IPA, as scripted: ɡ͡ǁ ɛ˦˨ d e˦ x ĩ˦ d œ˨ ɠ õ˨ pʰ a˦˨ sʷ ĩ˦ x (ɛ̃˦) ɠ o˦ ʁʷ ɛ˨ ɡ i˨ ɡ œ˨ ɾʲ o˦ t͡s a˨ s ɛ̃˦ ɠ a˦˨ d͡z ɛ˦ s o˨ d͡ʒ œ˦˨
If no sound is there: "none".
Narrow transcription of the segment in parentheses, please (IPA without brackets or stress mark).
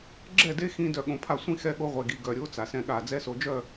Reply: ɛ˦